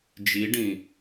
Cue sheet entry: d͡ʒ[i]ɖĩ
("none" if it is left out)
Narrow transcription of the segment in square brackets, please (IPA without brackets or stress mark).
i